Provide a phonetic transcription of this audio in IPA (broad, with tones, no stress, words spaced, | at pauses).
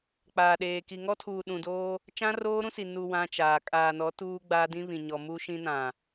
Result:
k͡paː˨ɗeː˨ ki˨ŋɔ˦tʰuː˨ ɗũ˨doː˦ | t͡ʃã˦roː˦ɾũ˦si˨ nu˨ wã˦t͡ʃaː˨ kʼaː˨nɔ˨˦ tuː˦ɡ͡baː˦dĩ˦ βĩ˨ɲɔ˨mu˦ʃĩ˦ nã˨